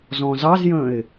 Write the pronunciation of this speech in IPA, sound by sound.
zɔ̃zɑzjə̃ɪ̯

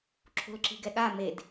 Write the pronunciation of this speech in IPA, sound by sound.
ǁʰo̤lǁi̤ɡɛɠa med

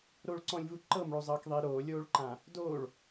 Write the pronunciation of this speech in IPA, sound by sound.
ɾoɭǀɔ̃lʲvu ǃɤmɭozˤɤːkðˤiː ɾoːlʲoːɭǃã | doːɭ

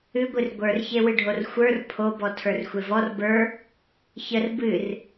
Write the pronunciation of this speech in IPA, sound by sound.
ɨɡʷɨr ɡʷə˞rçewɨɖʱor xʷə˞r pʰobɔ tʰə˞rxʷevɔr bə˞ | çər bɨr

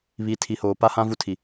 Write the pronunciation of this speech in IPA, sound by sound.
βi˨˦tʰi˨˦hoː˨ pa˦hã˦ vu˦tʰi˨

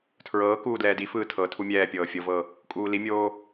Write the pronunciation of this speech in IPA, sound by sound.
tʰɹɤːkuː dlɛːdifɯː tʰɤ tʰumʲɛːpʲɤː fʲɤvɤ | kʼuːlimʲoː

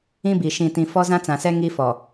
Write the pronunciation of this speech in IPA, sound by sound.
ĩ˦bi˨ ʃĩ˨tĩ˨ fɔ˦zã˦t͡sã˨sɛ˦ ŋi˦fɔ˨

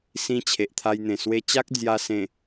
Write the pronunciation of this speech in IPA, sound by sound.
sĩ˧ t͡ɕʰe˨ʔt̪ʰa˧jn̪ẽ˨˩ swe˧t͡ɕa˦k̚ d͡zja˧sẽ˨˩

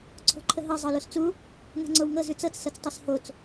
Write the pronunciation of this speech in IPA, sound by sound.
ǀʰo̤ǃʰəɦɤ zˤɤlost͡su | ŋa̤ŋ͡ǀowŋɤ zʉt͡sɤt͡s sɤt͡stˤɤshot͡s

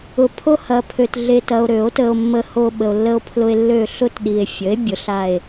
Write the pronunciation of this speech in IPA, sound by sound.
ʊ˨ pʰo˦hɐ˨pʰø˨t ɮe˨tɐ˨o̯ ɾø˨˩˦o̯tə˨o̯ mːə˨ho˨ ɓə˨o̯lːə˦o̯pʰlʊ˦e̯ lːø˦˨ ɬʊ˦tɗi˨e̯ fʲə˩˥e̯ bʲʊ˩˥ɬa˦˨e̯

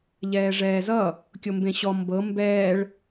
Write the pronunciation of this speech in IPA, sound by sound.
ʎɛːʐɛːzʌ | kʲombẽɕɔ mbɤ mbɛːɭ

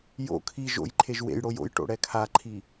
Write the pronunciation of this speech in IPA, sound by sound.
jo̰ kʰi ʒo̰jǃʰeʒ wḛj ɽojo̰jʈo̰ ɽɛkʰaǃʰi

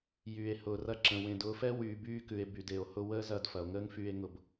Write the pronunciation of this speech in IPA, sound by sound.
jyː˨e̯hʊː˨rɐ˧ǁə̃˨ wẽ˨dʊː˧fɛ˦ wyː˨byː˧kʉ˨e̯ by˨de˨o̯hʊ˦ wəː˦zɐ˧d fɐ˨o̯ŋəː˦ŋfyː˧e̯ŋʊ˧b

